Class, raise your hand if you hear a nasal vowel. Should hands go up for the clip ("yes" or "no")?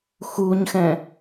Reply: yes